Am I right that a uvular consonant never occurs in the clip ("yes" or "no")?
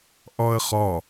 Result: no